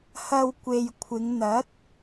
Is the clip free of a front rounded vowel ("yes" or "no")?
yes